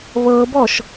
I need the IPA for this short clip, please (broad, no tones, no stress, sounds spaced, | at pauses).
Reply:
β ɤ b ɔ ʃ